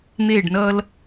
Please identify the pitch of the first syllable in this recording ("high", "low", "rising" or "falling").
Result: falling